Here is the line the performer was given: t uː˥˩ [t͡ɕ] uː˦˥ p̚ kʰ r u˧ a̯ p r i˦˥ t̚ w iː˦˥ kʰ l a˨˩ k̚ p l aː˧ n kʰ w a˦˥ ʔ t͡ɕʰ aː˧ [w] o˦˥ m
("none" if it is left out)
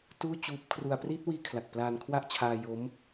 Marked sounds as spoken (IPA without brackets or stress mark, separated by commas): t͡ɕ, j